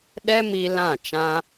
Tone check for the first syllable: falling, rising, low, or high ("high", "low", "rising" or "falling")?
high